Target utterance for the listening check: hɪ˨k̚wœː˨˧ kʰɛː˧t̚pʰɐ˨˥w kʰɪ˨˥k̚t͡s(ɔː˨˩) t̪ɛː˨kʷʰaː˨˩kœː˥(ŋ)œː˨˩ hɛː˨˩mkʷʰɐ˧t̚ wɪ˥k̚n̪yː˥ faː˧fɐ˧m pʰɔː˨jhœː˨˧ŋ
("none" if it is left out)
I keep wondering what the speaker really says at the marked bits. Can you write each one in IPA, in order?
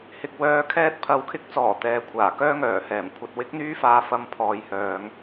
ɔː˨˩, ŋ

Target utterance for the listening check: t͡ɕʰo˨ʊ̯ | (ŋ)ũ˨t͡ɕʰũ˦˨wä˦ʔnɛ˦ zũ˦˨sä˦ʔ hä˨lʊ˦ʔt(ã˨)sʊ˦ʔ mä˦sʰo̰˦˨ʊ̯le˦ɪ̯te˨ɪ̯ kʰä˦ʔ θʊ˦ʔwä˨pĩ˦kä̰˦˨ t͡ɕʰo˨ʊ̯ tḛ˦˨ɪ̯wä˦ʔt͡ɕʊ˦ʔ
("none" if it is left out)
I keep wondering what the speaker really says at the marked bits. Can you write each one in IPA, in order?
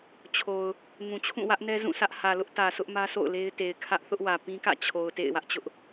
ŋ, ä˨

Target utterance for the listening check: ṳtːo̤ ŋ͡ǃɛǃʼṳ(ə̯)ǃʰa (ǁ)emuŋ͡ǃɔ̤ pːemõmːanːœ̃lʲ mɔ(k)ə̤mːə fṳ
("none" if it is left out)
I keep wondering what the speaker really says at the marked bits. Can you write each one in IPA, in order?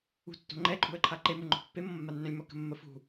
ə̯, ǃ, k

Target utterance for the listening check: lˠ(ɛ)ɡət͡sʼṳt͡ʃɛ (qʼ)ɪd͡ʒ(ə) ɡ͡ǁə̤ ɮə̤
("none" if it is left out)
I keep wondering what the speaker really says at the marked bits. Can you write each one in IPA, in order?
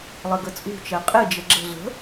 ɘ, qʼ, ə

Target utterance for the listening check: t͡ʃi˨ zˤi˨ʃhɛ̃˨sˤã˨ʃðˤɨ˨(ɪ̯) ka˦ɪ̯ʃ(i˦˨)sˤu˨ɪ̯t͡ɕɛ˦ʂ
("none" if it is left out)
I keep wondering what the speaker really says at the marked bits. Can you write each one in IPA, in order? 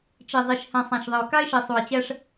ʊ̯, i˨

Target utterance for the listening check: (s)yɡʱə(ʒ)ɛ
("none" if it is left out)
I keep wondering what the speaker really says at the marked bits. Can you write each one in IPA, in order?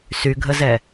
s, z

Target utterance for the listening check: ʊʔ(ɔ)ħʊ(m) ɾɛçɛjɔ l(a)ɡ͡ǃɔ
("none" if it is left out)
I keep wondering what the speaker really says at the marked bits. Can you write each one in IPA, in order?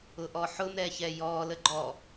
ɔ, m, ə

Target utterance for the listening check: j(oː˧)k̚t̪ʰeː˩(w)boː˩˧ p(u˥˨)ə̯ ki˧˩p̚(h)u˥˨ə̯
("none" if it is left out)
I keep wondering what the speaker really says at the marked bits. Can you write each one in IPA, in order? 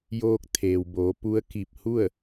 oː˧, w, u˧˥, h

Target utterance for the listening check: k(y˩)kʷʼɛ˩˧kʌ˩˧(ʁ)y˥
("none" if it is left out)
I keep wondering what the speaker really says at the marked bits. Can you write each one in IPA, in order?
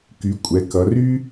y˩˧, r

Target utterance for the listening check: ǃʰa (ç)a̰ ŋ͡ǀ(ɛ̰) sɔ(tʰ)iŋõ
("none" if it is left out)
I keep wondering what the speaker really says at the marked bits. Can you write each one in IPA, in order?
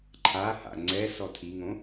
h, ɛ, tʰ

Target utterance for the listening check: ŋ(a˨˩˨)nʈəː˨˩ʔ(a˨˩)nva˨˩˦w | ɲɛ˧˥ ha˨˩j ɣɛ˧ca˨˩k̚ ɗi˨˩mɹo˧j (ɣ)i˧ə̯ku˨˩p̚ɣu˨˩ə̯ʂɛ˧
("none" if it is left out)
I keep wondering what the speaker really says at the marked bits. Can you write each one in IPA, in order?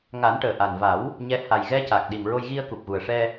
a˨˩˦, a˨˩, ɣ

